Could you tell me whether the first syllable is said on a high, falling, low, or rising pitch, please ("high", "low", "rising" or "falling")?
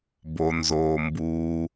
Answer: low